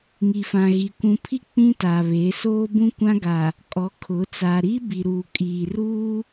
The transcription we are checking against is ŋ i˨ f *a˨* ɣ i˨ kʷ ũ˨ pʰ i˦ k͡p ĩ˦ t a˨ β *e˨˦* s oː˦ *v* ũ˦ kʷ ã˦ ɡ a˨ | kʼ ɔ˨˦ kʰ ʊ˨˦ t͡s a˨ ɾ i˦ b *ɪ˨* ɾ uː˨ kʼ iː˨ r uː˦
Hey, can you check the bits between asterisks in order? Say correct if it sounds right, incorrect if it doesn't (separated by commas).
incorrect, correct, incorrect, incorrect